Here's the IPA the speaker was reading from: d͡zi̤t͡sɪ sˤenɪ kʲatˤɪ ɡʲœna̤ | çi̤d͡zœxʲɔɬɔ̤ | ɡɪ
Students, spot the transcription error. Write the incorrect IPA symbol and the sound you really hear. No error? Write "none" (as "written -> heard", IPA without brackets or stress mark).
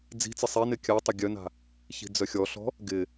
none